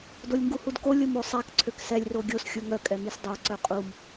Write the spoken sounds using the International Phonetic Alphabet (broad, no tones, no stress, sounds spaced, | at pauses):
d o lʲ ŋ ɡ u h u d k o lʲ o m o sˤ a k ǀʰ ø k s ɛ lʲ r o ɡʲ o s xʲ u ŋ œ kʼ ɛ m i s dˤ œ ǀ œ qʼ u m